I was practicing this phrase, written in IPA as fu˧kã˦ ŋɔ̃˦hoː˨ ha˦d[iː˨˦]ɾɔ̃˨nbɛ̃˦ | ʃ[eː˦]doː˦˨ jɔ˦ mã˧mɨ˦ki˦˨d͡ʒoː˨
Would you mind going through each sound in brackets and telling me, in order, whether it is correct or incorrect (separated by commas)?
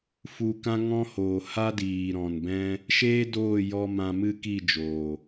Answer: incorrect, correct